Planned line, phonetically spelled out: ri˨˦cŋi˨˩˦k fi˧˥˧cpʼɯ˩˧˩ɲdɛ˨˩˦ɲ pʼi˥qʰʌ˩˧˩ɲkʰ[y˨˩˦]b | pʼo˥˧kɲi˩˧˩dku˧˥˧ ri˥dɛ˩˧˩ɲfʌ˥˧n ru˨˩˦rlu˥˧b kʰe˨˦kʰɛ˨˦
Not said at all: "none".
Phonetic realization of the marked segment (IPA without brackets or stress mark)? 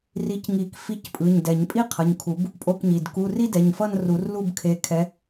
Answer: u˨˩˦